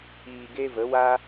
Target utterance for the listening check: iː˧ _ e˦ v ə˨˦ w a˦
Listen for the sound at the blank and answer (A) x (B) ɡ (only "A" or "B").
B